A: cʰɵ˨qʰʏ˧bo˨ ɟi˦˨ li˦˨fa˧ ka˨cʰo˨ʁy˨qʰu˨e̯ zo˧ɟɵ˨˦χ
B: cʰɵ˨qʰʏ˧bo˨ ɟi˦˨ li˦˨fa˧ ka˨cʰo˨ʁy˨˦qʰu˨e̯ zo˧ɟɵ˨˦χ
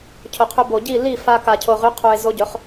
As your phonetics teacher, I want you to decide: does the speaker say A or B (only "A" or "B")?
B